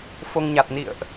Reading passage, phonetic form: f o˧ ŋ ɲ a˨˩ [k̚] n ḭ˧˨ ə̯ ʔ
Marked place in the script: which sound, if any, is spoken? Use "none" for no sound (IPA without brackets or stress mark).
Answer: t̚